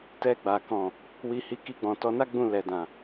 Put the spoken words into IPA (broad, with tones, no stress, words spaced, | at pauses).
tɛ˧ɡ͡ba˨ kɔ̃˨ | wi˧hi˧ ki˧ɡ͡bɔ̃˨tɔ˨˦na˦ ɡ͡bũ˦˨lɛ˨dã˨